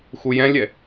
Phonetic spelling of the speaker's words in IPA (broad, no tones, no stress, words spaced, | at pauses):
xujɛ̃lʲɛ